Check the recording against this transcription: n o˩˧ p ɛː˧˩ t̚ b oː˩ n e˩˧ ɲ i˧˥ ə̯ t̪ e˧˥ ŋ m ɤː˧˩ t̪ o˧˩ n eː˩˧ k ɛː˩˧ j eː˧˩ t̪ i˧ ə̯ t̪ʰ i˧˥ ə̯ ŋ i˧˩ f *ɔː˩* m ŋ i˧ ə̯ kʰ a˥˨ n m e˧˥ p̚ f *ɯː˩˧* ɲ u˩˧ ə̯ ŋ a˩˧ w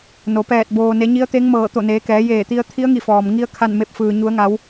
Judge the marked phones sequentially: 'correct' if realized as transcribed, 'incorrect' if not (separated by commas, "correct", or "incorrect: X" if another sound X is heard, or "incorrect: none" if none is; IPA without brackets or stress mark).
correct, incorrect: ɯː˩